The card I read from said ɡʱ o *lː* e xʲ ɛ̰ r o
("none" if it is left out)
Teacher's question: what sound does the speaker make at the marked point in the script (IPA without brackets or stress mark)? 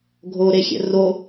ɾ